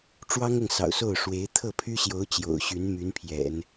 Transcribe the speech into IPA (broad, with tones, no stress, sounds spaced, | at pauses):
ʈ͡ʂ w ɑ˥ ŋ ɤ˨ ŋ s ɑ̰˨˩ ʊ̯ s o˥˩ ʊ̯ ʂ w e˧˥ ɪ̯ t̪ʰ ɤ˥˩ pʰ y˥ ɕ j o˧˥ ʊ̯ t͡ɕ j o̰˨˩ ʊ̯ ɕ y˧˥ n m y˧˥ n pʰ j ɛ̰˨˩˦ n